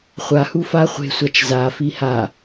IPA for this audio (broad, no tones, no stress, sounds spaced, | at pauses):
χʷ a h u f a χʷ e̤ sʷ a t͡ʃ z a f i h a